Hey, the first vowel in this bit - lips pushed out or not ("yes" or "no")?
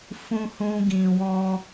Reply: yes